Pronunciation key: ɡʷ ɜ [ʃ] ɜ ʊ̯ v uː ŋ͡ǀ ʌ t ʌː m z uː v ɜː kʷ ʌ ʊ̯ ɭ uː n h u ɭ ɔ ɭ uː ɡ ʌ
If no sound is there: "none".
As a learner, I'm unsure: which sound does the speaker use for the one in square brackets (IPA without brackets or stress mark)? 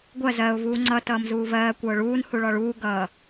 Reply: z